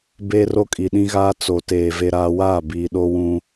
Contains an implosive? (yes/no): yes